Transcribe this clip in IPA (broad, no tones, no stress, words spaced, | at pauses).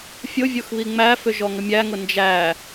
fʲʊvʲoxβi ŋ͡mæfʏ ʒɔŋəmʲæŋʊ nd͡ʒæ